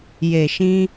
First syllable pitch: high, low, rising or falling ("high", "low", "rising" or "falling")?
low